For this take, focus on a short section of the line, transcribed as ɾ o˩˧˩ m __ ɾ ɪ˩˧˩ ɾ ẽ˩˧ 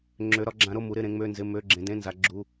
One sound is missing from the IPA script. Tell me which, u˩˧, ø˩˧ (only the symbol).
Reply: u˩˧